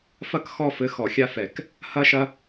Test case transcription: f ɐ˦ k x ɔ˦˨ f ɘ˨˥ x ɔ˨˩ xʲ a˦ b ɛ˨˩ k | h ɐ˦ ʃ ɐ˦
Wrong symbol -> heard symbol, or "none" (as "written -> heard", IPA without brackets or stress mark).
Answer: b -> f